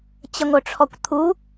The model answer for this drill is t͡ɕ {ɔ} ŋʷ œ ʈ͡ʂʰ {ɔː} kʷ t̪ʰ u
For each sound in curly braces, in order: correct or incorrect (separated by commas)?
incorrect, incorrect